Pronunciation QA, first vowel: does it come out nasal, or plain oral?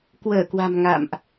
oral